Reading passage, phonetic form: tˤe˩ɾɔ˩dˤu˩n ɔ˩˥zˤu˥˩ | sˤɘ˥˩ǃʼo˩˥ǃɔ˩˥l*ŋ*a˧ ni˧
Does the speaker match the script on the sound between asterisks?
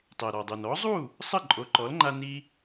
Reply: no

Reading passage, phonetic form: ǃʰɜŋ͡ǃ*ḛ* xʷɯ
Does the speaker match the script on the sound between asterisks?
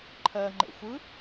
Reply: yes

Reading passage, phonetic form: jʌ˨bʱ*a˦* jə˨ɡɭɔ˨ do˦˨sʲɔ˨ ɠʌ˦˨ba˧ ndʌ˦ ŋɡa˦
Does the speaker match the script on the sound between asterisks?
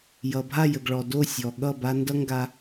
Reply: no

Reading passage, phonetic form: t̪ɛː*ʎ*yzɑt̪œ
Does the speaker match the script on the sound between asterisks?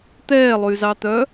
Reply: no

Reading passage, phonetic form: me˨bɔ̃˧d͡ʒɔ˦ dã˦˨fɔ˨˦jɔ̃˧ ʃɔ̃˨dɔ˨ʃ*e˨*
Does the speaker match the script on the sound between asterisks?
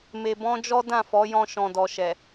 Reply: no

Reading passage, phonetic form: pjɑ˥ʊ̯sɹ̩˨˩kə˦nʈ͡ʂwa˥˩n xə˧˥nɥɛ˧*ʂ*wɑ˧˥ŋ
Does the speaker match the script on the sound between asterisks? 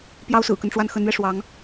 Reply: yes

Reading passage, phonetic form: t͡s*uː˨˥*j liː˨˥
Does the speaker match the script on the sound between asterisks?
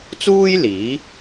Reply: no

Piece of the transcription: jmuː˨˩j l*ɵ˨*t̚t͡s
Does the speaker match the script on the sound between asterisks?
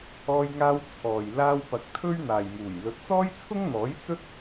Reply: no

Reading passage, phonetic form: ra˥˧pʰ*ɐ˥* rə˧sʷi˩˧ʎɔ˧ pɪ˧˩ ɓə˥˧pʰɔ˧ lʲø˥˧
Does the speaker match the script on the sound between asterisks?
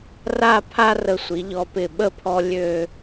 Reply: no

